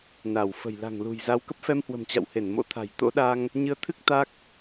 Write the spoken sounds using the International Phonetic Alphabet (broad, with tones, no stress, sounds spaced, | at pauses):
n a˧˩ w f ə̤˨˩ j l a̤˨˩ ŋ l ṳ˨˩ j z a˨˦ w k ə˦˥ p̚ f ɛ˧ m h w ə̤˨˩ m t͡ɕ a̰˧˨ w h e˧˩ n m o̰˧˥ t̪ʰ a̤˨˩ j t̪ o̰˧˥ ɗ a˧ ŋ | ɲ ɨ˧ ə̯ t̪ʰ ɨ˦˥ k̚ t̪ a˦˥ k̚